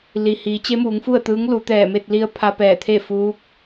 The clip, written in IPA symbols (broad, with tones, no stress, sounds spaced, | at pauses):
l i˩ h iː˩˧ t͡ɕ e˧˥ m uː˩˧ ŋ f u˥˨ ə̯ t̪ ɯː˧˥ ŋ l u˩˧ t̪ ɛː˧˩ m e˥˨ t̚ l i˧ ə̯ pʰ a˧ p ɛː˧˩ t̪ʰ e˥˨ f uː˧˥ k̚